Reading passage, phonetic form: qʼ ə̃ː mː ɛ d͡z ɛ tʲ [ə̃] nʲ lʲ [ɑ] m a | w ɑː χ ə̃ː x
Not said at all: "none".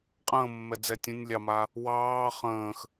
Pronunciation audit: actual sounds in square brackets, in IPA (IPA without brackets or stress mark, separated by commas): ə̃, ɑ